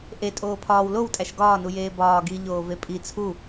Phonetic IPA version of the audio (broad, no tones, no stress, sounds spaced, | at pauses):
ʔ e tʼ oː pʰ ɒː w l o w tʼ æ ʃ ɡ ɒː n u j eː b ɒː ɡ i ʎ oː v e pʼ i t͡sʰ u